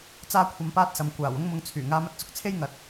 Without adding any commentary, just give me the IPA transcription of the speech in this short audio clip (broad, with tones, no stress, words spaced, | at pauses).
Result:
t͡saː˥kʷʰɐ˧mpaː˥t̚sɐ˨m kʷaː˨˩w ʊ˥ŋmʊ˧ŋt͡sʰyː˨˩ ŋaː˧mɐ˧t̚t͡sʊ˨˥k̚t͡sʰe˥j ŋɐ˨t̚